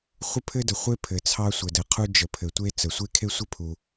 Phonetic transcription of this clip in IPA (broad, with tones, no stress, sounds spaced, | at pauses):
χʷ ə˥ pʰ ɘ˥ d ə˩ χʷ e˥ pʰ ɘ˩ t͡sʰ ɑ˥ sʷ ə˩ d ə˩ qʰ u˥ d͡ʒ ə˩ pʰ ɘ˩ tʷ e˥ t͡s ə˩ sʷ e˥ kʰ e˥ sʷ ɘ˥ pʰ u˩